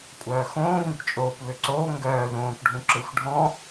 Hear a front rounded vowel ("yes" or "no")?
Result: yes